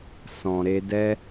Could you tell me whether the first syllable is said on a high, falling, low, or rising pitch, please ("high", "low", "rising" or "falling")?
low